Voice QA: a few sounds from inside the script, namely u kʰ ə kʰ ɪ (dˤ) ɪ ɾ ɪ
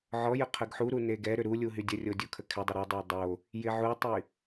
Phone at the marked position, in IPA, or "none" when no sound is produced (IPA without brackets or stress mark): dˤ